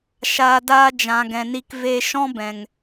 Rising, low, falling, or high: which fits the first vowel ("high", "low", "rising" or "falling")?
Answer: low